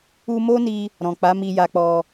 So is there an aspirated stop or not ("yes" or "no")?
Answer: no